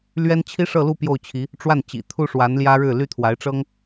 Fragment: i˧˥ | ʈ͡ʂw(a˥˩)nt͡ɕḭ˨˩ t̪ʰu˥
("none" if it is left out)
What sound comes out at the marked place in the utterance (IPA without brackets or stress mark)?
a˥˩